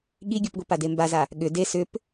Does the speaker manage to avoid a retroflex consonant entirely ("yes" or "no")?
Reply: yes